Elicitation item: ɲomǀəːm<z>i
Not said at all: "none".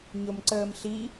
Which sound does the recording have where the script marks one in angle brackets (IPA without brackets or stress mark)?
ɬ